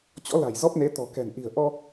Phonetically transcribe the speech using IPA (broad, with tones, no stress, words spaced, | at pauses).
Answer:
t͡ɕɔ̰˧˥la̤˨˩j zɔ˦˥p̚ne˨˦ t̪ɔ̤˨˩kɛ̤˨˩n ʔi̤˨˩ə̯ʔɔ˧